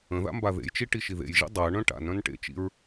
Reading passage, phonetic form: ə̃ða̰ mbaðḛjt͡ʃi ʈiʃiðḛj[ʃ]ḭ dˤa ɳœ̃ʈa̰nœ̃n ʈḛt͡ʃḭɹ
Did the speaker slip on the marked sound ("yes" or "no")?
yes